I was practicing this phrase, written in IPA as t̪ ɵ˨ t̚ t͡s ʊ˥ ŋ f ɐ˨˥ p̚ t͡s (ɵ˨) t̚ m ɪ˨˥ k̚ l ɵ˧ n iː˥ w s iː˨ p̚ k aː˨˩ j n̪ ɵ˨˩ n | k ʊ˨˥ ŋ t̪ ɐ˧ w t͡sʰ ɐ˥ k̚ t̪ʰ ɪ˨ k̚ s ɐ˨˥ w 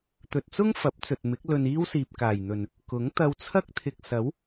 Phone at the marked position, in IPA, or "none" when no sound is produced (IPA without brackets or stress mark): ɵ˨